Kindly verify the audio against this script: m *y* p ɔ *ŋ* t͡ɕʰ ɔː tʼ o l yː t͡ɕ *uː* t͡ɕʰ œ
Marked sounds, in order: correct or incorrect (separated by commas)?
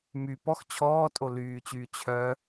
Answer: correct, incorrect, incorrect